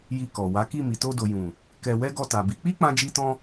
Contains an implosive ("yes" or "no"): no